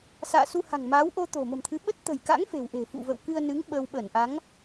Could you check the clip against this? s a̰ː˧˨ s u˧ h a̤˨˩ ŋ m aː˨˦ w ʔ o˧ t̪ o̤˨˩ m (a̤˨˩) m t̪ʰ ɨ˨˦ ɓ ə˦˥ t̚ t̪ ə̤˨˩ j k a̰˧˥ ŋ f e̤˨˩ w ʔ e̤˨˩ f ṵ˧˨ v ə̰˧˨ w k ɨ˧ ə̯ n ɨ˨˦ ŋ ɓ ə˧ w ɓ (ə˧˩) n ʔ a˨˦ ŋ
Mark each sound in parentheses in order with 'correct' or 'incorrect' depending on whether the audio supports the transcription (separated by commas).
incorrect, correct